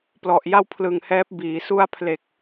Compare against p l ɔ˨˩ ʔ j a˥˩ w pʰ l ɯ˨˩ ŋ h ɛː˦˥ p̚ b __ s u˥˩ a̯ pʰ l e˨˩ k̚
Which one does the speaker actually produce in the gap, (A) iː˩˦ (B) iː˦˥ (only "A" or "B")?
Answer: A